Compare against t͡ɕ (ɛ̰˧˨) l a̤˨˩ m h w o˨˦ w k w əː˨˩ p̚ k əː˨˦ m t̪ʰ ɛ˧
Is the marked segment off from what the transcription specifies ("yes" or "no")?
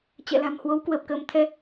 no